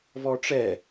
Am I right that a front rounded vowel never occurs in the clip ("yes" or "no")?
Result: yes